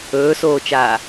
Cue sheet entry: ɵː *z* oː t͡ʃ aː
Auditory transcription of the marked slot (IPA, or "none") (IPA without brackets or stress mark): s